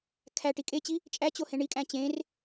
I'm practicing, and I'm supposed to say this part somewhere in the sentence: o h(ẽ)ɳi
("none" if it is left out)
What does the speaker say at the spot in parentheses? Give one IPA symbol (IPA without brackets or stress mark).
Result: ẽ